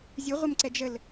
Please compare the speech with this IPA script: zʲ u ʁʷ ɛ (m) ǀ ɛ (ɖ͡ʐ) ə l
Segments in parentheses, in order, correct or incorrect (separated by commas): correct, incorrect